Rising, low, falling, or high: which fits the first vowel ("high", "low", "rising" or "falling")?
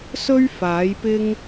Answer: high